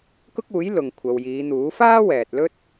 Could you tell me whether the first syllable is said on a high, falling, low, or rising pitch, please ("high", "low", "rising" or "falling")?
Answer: high